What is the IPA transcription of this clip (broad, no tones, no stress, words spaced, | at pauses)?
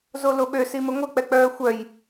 zoloɓø siməŋʷə k͡pɛk͡pœːxʷœj